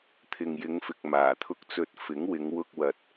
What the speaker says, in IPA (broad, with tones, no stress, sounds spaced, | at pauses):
t̪ʰ ɪ˨ ŋ j ɪ˨˧ ŋ f ɪ˨ k̚ m aː˨˩ t̪ʰ ʊ˧ k̚ t͡s ɵ˧ t̚ f ɪ˨˥ ŋ w ɪ˨˧ ŋ w ʊ˧ k̚ w ɐ˨ t̚